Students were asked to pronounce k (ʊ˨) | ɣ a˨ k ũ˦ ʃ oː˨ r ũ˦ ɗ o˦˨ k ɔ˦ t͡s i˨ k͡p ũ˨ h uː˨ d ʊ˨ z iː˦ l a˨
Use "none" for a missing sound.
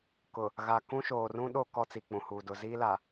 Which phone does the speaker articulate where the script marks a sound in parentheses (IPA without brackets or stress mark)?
ʊ˨